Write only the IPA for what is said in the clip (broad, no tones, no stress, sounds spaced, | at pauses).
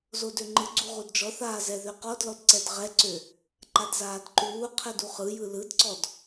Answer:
z o d ø ŋ͡ǃ ɯ ɡ͡ǀ u ʁ u d d͡ʒ ɔ θ aː z ɛ ð ø q ɔ d l ɔ d ǀ ɛ d ʁ ɛ ǀ ø | ǃ a d z aː d ǃ uː qʰ ɛ d u χ ɯ j ɯ l ɯ d ǀ ɔ d